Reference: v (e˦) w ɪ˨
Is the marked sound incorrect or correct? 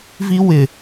incorrect: i˦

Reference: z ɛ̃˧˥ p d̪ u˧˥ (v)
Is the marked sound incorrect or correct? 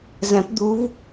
correct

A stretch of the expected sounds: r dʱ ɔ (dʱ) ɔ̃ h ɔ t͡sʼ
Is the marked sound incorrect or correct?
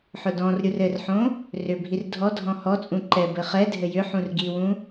correct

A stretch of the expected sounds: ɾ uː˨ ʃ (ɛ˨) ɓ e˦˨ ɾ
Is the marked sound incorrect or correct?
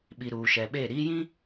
correct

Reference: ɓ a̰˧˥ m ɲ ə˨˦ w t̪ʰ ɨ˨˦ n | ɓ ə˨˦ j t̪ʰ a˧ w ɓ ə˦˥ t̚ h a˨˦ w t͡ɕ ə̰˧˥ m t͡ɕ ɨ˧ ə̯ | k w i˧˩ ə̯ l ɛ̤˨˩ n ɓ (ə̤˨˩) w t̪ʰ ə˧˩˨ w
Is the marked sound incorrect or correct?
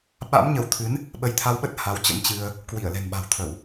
incorrect: a̤˨˩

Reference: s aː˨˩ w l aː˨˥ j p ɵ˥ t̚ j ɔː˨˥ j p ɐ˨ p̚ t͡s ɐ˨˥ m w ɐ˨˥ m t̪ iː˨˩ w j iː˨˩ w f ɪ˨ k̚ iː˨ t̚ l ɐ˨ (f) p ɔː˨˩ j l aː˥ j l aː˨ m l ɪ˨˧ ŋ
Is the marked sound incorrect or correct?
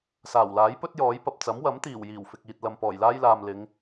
incorrect: m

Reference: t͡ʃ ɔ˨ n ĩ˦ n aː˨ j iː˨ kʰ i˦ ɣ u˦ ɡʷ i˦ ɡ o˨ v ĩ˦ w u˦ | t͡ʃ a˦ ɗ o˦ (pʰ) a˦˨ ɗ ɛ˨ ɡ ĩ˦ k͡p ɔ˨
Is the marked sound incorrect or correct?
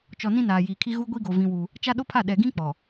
correct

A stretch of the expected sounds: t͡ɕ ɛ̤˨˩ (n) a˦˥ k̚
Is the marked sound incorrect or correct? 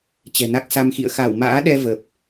correct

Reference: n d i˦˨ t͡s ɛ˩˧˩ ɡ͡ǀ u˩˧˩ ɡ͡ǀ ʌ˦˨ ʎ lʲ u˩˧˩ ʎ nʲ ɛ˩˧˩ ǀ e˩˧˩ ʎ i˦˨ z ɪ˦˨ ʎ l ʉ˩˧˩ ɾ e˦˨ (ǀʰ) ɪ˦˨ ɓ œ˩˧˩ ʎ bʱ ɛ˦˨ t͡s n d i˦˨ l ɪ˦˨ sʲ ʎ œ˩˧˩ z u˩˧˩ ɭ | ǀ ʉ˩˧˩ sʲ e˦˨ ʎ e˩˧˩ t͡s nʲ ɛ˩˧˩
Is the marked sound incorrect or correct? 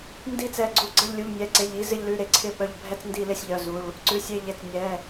correct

